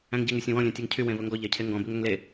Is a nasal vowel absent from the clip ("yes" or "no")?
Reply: no